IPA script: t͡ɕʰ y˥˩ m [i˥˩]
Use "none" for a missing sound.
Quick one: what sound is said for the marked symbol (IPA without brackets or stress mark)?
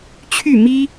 i˥